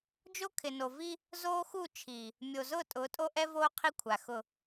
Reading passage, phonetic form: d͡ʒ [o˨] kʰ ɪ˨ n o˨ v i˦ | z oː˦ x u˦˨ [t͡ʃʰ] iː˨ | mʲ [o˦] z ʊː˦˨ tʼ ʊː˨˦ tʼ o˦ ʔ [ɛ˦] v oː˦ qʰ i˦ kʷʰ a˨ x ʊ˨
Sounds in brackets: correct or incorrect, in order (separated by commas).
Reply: incorrect, correct, incorrect, correct